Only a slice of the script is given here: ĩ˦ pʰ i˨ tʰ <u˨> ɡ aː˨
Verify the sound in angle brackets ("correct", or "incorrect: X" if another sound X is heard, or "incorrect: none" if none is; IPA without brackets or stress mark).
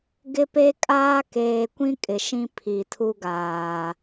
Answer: incorrect: u˦